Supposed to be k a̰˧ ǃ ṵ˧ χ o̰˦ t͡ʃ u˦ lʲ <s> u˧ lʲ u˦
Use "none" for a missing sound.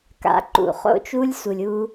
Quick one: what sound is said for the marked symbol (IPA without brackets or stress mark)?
s